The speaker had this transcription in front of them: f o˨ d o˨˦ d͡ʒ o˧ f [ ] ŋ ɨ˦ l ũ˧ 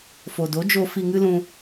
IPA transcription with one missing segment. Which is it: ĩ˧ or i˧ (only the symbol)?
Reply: i˧